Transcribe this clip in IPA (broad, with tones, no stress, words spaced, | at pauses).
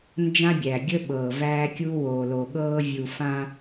nd͡ʒã˦bʲæ˨ɡʲə˦ɓɤː˨ væː˦kʲu˦woː˨lo˨ ɠɤː˦vʲu˨fã˦